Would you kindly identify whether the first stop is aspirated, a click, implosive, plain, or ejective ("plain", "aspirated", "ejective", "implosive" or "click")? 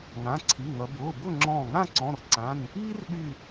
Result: click